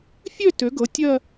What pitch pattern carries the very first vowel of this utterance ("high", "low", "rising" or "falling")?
falling